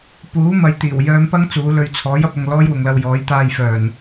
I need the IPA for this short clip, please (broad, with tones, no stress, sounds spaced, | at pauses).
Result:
p uː˨˥ m ɐ˨ j t̪ iː˨˩ w j œː˧ m p ɐ˥ ŋ t͡s uː˨˧ l ɵ˧ ɥ t͡sʰ ɔː˨˥ j ɐ˧ p̚ ɐ˨ ŋ l ɔː˥ j w ʊ˨ ŋ l ɐ˧ w j ɔː˨˥ j t̪ aː˧ j f œː˨˩ n